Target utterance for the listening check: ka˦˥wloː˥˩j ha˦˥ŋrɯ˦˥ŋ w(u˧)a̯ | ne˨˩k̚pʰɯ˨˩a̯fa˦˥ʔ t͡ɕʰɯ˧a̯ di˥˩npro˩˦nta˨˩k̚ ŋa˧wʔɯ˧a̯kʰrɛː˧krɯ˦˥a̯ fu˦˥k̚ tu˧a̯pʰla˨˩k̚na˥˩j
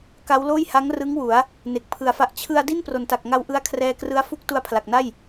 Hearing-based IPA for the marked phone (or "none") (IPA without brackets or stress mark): u˩˦